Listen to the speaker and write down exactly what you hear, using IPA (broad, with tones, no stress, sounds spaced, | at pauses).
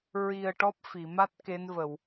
ɹ i˨˩ ə̯ ʈ ɔ˦˥ p̚ f i˨˩˨ m a˦˥ t̚ k e˧˥ n v ə˨˩˨ w